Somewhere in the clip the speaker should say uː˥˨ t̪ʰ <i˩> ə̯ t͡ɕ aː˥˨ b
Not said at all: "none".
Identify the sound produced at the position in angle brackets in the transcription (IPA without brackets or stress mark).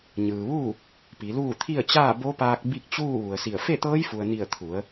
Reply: i˥˨